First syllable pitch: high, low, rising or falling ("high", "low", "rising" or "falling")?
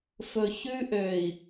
low